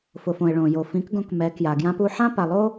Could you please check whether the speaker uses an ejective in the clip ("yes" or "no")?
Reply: no